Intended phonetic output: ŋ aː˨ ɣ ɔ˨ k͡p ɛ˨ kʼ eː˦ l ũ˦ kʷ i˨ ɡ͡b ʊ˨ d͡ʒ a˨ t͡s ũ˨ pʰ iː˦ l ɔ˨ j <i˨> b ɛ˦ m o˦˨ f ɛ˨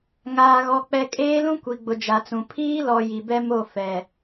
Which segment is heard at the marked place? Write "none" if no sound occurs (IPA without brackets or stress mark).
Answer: i˨